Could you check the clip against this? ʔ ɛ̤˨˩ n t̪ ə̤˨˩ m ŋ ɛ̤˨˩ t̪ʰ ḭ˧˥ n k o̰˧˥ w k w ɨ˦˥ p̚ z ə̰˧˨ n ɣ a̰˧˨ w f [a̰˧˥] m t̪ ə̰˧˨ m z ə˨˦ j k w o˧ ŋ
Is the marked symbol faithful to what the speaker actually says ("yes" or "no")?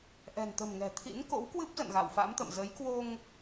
yes